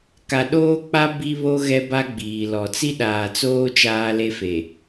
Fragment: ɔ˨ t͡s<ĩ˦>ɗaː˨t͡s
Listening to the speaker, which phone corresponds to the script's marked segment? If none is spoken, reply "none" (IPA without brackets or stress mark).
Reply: i˦